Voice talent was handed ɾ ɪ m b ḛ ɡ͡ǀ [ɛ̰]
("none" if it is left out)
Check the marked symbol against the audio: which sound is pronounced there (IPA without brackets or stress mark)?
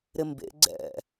ɛ̰